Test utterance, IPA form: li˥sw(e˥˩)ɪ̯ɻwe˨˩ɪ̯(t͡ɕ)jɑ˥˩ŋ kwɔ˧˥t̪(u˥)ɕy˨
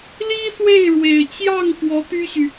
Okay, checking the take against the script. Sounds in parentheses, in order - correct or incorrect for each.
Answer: correct, correct, incorrect: y˥

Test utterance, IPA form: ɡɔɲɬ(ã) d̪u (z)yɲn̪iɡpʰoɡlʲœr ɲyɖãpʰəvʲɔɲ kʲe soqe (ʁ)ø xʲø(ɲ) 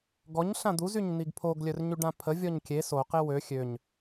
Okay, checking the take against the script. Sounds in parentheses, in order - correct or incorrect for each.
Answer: correct, correct, incorrect: w, correct

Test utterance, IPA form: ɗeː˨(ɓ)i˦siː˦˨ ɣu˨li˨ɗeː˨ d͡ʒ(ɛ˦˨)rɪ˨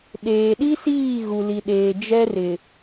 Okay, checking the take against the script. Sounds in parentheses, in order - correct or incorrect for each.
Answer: incorrect: ɗ, incorrect: ɛ˦

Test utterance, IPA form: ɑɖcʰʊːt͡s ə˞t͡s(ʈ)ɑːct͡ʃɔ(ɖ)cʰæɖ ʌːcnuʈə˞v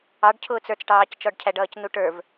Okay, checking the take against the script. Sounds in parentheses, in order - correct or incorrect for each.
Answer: correct, correct

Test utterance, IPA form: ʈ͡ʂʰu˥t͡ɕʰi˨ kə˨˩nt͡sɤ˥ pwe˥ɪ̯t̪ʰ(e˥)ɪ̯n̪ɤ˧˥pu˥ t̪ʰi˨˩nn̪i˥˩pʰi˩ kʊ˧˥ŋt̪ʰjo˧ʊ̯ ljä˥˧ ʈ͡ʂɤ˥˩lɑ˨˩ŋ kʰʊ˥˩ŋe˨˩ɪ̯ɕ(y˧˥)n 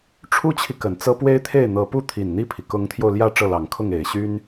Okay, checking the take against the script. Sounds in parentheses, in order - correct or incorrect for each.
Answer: incorrect: e˥˩, incorrect: y˥

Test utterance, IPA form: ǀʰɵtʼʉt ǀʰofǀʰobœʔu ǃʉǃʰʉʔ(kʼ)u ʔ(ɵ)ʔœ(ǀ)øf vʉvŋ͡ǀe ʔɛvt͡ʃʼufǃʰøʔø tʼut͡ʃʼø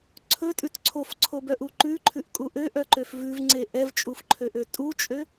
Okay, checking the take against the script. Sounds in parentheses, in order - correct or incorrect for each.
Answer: correct, incorrect: ø, incorrect: ǃ

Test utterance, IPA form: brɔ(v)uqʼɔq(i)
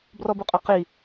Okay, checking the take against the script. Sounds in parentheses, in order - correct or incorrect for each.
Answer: incorrect: b, correct

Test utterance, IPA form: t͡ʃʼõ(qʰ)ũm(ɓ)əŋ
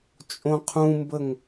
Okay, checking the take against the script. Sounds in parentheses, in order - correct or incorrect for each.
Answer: correct, incorrect: b

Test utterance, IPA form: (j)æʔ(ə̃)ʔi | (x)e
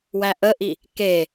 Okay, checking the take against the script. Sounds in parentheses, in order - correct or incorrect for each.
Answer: incorrect: w, incorrect: ə, incorrect: k

